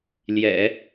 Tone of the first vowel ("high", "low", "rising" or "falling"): low